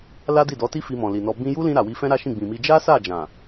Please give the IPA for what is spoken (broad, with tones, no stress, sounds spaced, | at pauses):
l a˦ d i˦˨ d ɔ˨˦ t i˦ f i˧ m ɔ̃˨ l i˨ n ɔ˧ b ĩ˧ j u˦ l ĩ˧ ɾ a˨ w i˧ f ɛ̃˦ ɾ a˦ ʃ ĩ˦˨ ɡ͡b ĩ˨ m i˧ d͡ʒ a˦ s a˦˨ d͡ʒ ã˨